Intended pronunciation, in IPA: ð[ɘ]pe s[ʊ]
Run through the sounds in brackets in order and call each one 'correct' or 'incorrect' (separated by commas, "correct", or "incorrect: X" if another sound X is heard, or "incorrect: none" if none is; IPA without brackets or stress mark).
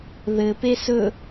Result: correct, incorrect: ɵ